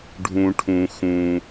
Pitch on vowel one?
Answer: low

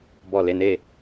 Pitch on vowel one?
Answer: falling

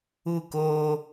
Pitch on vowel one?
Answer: falling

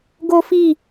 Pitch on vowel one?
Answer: high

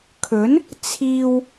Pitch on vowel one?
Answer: rising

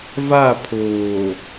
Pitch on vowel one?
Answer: falling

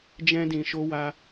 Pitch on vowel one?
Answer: high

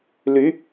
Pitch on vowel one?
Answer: rising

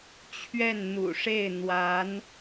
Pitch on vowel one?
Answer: falling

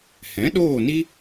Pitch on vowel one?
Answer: rising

